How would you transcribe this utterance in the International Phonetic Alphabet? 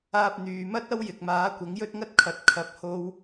aː˧ p̚ n̪ yː˨ m ɐ˥ t̚ ɐ˥ w j ɪ˨ k̚ m aː˨˥ kʷ ɐ˨˥ ŋ j ɵ˥ t̚ ŋ ɐ˥ t̚ kʰ ɐ˨˥ t̚ kʰ ɐ˨˥ p̚ h o˧ w

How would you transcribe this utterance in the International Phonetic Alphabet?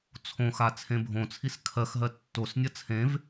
t͡sʰ õ x a t͡sʰ ẽ bʱ õ t͡sʰ i s kʰ ɜ x ɦ ɜ tː o s nʲ ɐ t͡sʰ ẽ v

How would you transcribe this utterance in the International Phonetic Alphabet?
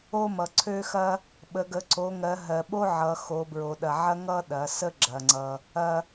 o˦ m ʌ˩ ǀʰ ø˦ x ɐ˦ | ɓ ə˩˧ ɡ ə˩˧ ǀ o˩˧ ŋ ɜ˩˧ ɦ ɜ˩ ɓ o˦ ʕ ʌ˩˧ x o˩˧ b ɹ o˩ ɗ ɐ˩ ʕ ɐ˦ ŋ ʌ˦ ɗ ɐ˩˧ s ə˦ ɡ͡ǁ ɐ˩ ŋ͡ǀ ʌ˩ | ɐ˩

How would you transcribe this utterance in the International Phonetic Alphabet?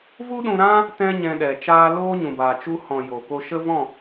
v u˦ ɗ ũ˧ ɾ ã˦ | t ɛ̃˦ ɲ ɛ̃˧ ɗ ɛ˨ t͡ʃ aː˦ l oː˦ ɲ ũ˨ b aː˨ t͡ʃ u˧ h ɔ̃˨ j o˨ k o˦ ʃ ə˦ v ɔ̃˦˨

